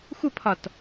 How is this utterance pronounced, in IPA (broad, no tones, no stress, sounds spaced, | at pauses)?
xʷ ə pʰ ɒ t